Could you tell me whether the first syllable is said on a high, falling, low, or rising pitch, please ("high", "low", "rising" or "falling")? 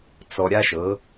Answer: low